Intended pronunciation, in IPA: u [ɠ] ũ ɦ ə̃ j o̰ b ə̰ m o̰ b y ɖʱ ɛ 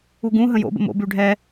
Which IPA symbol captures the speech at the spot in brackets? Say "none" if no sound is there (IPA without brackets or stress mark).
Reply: ɡ